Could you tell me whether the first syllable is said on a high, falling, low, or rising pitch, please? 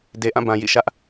low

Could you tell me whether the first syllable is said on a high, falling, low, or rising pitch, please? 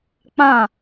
falling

